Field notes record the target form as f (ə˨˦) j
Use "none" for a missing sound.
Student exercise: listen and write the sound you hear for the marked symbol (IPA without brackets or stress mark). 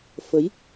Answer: ə˨˦